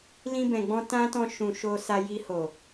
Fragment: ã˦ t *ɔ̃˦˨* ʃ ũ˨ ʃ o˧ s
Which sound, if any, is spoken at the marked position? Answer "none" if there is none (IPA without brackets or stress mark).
ɔ̃˦˨